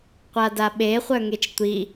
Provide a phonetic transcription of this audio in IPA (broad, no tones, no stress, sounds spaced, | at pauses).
qʷ a d a ɓ e χʷ œ ŋ e t͡ʃ tʷ i